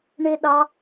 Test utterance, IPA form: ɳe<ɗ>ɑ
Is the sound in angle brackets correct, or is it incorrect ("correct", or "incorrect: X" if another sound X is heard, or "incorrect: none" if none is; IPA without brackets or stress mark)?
correct